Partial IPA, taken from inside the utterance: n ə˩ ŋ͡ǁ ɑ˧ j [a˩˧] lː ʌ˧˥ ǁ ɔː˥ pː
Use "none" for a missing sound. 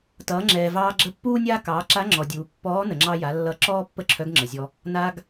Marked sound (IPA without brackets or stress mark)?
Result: a˩˧